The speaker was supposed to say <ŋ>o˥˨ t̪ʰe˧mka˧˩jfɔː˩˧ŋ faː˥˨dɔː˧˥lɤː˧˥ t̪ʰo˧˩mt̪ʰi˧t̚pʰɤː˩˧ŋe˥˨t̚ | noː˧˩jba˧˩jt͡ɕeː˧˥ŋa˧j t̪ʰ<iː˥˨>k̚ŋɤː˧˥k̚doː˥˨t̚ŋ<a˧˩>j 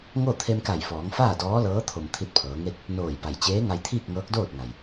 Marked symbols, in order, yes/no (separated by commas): yes, yes, no